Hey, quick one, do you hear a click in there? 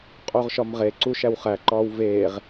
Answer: yes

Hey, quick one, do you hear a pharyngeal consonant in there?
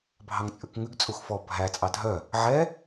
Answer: yes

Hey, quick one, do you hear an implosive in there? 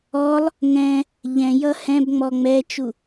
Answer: no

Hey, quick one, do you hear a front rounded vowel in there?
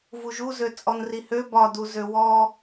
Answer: yes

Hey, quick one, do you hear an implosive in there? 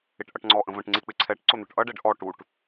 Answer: no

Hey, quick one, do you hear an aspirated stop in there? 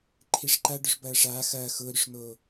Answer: yes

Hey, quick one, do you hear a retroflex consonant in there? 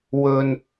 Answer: no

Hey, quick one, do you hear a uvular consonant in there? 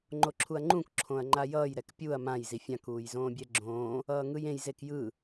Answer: no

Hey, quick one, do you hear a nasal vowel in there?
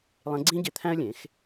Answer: yes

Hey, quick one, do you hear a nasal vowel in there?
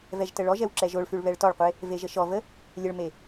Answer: no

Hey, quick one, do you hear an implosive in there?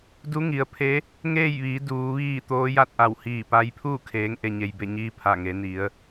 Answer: no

